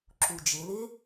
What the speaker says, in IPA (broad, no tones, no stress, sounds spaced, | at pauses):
ǁ u d͡ʒ ɪ l ɪ